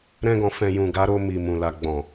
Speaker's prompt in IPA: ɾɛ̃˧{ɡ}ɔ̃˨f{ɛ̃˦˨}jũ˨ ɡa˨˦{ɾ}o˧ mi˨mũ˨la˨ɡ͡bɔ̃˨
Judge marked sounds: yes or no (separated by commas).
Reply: yes, no, yes